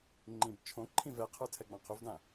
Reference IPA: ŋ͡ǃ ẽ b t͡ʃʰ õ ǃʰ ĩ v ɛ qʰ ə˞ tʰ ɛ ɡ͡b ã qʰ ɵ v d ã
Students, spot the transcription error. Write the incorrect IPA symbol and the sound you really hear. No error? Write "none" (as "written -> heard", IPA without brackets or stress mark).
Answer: ẽ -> ĩ